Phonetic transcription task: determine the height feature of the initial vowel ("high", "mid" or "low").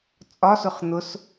low